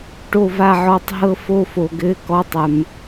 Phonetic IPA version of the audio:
ʈ o˥˧ v a˥˧ ʕ ɔ˥˧ tˤ ɦ ɤ˥˧ f o˥˧ f o˨ ɡ ɘ˧˥˧ k ɔ˧˥˧ tˤ ɘ˨ m

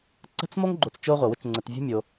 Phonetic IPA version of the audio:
ǀ ə̤˥ t͡s m o˥ ŋ ɡ͡ǃ o˨ t͡s t͡ʃ o˦ ʁʷ ə˩ w ʊ˦ t͡ʃ ŋ͡ǀ ə˨ t vʲ ṳ˥ mʲ o˨

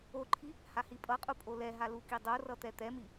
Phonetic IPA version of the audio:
o ǃʰ i | h a h i pʼ ʌ qʼ u pʼ o l ɛ ɦ a l u k i dˤ o r ʌ t̪ ɛ t̪ ɛ m i

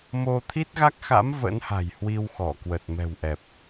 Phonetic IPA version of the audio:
m o˧ t̪ʰ i˦˥ t̚ ɣ a˦˥ k̚ x a̰˧˥ m v ə̰˧˥ n h a̤˨˩ j h w i˧ w x ɔ˧˩ k w ə˨˩ t̚ m ɛ̤˨˩ w ʔ ɛ˨˩ p̚

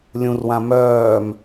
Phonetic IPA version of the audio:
lʲ ũ r w ã m œː m

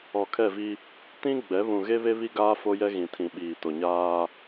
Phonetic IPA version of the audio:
ɔ˨ kʰ ɛ˦˨ v i˦ | t ĩ˦ ɡ͡b ɛ˨˦ β ũ˨ ɣ e˦ β e˦ β i˦ ɡ aː˦ f o˦ j ɛ˦ ɣ ĩ˨ tʰ ĩ˨ ɓ iː˨ t o˨ ɲ aː˦

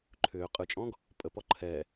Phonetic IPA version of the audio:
ǃʰ ʏː qʼ ɯ t͡ʃʼ ɔ̃ ɡ | pʼ ə p ɔ ǃʰ ɛ

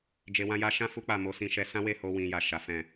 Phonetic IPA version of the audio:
d͡ʒ e˧ w ã˦ j a˦ ʃ ã˦ f u˦ k͡p a˦˨ m o˧ s ĩ˧ ʃ ɛ˧ s ã˦ w e˦˨ h o˧ w ĩ˨ j a˨ ʃ a˨˦ f ɛ̃˦˨

